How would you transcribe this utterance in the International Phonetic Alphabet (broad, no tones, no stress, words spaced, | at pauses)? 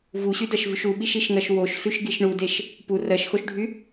vuɕydɜʃvyʃ uɓiʃiʃŋɜʃ woʃɬyʃɡiʃ ɳudeʃ | pu rɜʃxoʃɖʱy